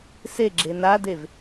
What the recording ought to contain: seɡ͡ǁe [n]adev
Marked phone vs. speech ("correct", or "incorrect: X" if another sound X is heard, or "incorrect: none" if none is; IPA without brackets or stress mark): correct